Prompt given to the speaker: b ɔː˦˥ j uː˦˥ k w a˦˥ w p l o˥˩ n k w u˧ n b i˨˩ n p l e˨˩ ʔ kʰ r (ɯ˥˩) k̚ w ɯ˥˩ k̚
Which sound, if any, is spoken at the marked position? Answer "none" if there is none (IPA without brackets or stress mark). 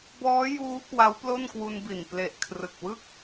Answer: ɯ˨˩